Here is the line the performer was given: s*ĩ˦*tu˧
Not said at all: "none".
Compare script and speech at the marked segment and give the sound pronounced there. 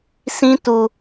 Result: ĩ˦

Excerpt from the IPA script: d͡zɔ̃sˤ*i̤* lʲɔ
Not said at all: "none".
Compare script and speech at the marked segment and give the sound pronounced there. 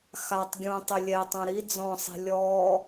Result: i̤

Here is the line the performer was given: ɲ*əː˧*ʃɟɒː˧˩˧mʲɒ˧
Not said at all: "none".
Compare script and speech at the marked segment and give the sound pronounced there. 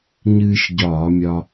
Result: ɨː˧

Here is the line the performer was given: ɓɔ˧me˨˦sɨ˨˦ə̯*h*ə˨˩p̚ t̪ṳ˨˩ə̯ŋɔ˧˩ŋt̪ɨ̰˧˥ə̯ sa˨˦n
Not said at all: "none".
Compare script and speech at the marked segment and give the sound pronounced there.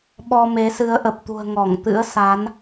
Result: ʔ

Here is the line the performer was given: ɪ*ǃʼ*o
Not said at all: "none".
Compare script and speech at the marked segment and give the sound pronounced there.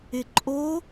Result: ǃʼ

